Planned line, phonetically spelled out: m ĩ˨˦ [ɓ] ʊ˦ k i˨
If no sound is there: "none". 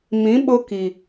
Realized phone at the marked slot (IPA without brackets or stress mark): ɓ